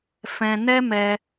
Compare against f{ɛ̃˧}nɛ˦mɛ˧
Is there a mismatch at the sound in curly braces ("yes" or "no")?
no